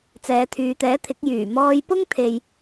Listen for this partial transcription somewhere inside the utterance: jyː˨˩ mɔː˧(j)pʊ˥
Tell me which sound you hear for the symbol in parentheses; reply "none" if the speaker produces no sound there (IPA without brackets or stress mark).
j